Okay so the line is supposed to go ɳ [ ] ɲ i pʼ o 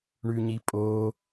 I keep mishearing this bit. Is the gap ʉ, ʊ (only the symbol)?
ʉ